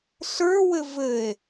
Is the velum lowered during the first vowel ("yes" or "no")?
no